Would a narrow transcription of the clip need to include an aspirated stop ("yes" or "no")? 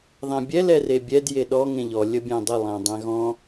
no